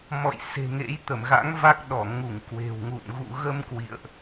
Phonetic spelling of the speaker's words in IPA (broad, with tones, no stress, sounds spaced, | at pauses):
m ɔ̰˧˨ j s e̤˨˩ ŋ ḛ˧˥ j t̪ ə˧˩ m ɣ a̰˧˥ ŋ v a˦˥ k̚ ɗ ɔ˧˩ ŋ u˧˩ ŋ k w e̤˨˩ w ŋ ṵ˧˨ n ɣ ṵ˧˨ ɣ ə˧ m k w ḭ˧˨ ə̯ ʔ